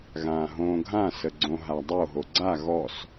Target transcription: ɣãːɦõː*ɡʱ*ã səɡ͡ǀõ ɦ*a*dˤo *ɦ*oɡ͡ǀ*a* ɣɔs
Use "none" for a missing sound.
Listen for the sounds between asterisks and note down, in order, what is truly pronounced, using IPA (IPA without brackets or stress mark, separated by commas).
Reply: ɡʱ, a, ɦ, a